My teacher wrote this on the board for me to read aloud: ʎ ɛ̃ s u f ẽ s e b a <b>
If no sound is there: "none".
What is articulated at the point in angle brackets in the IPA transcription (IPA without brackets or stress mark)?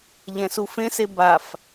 f